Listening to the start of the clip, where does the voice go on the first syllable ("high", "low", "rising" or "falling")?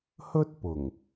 high